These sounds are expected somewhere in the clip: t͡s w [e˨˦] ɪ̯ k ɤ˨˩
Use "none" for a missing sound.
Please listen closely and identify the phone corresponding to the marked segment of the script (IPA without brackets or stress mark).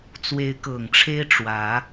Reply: e˨˦